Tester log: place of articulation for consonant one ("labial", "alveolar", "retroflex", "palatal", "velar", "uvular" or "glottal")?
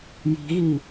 palatal